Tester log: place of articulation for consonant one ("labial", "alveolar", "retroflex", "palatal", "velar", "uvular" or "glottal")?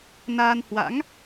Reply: alveolar